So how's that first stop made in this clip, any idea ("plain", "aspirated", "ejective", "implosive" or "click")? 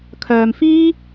aspirated